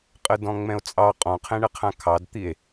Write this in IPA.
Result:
qʼ ə d ɔ̃ ŋ͡m ɛ̃ o̯ t͡sʼ ɑ qʼ ɔ̃ qʰ ɛ̃ ɳ ə qʰ ã kʰ ɑ d t̪ i e̯

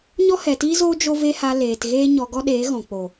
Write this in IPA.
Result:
ɲ ɔ˦ h ɛ˨ t iː˦ z oː˦ d͡ʒ o˦ v e˦ h a˧ l eː˨ t ɣ eː˦ ɲ ɔ˧ ɡ ɔ˦ ɗ eː˨˦ ɣ ɔ̃˨ k͡p o˨

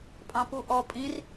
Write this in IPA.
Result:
pʼ ɑ̃ p u ʔ ɔ pʼ ĩ r

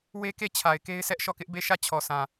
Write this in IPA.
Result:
w e˦ k e˦˨ t͡ɕʰ a˨ ɪ̯ k e˦ ɪ̯ s ɛ˦ ʔ ʃ ɔ˦˨ k ɪ˦ ʔ b e˦˨ ʃ ä˦˨ t͡ɕʰ ɔ˨ s ã˨

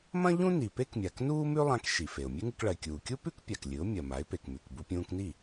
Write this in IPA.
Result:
m ɐ̃˥ ʎ ũ˥ n i˩ p e˥ k mʲ a˩ k n uː˥ m ʉ˥ lˠ ã˧ k ʃ i˩ f e˩ ʊ̯ mʲ ʉ˥ ŋ ɨ˧ k ɭ ɐ˩ ɪ̯ kʲ uː˩ kʲ u˥ p ʉ˥ k pʲ a˩ k lʲ ɨ˩˥ ʊ̯ mʲ ɐ˩ m a˩˥ ɪ̯ p e˩ k m ʉ˩ k b u˧ pʲ ũː˧ k n i˥˩

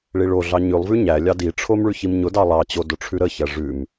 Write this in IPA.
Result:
ɭ i ɭ o ɮ ɑ ɲ ʉ lˠ v ʉ ɲ æ lʲ ɑ d i ʈ͡ʂʰ o m ɭ ʉ ç i m ɲ ʊ d ɑ lˠ ɑ t͡ɕ o d ʊ ʈ͡ʂʰ ʉ ɾ ə ç æ ʐ ʉ m

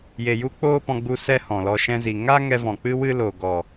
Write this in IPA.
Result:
j e˨ j u˦ k͡p oː˦ p ɔ̃˧ ɡ͡b u˧ s ɛ˦ h ɔ̃˨ l ɔ˧ ʃ ɛ̃˧ z i˨ ŋ a˦ ŋ ɛ˧ v ɔ̃˨ k͡p ɨ˦ w ɨ˦ l o˨ ɡ ɔ˨

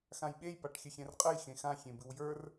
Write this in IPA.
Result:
x ã j ɓ e j p a ʈ xʲ ə xʲ ɛ̃ r qʼ ə j x ẽ x ã xʲ ẽ b ɨ w j ə˞ r

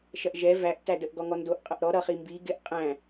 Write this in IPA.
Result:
ʃ ɐ ʔ ʒ ɛ v æ ʔ t æ d ə ʔ ɡ ɔ ŋ ɔ n d o ʔ qʼ ʌ ʔ ɾ ɔ ɾ ʌ χ i m b i ɡ ɪ ʔ qʼ æ̃

